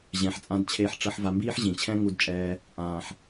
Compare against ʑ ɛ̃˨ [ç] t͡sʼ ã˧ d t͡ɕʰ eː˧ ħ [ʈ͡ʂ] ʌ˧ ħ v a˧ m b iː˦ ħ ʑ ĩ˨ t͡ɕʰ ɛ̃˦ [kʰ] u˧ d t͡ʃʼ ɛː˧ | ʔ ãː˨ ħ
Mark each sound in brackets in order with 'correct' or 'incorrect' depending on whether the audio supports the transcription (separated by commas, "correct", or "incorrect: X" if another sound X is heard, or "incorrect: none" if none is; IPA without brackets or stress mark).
incorrect: ħ, correct, incorrect: ŋ